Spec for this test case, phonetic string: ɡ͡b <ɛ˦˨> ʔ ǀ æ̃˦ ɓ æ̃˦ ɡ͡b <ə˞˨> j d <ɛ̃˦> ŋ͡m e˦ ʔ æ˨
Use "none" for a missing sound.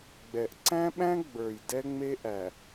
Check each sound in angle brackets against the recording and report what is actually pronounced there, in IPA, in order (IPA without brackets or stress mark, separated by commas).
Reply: ɛ˨, ə˞˨, ɛ˦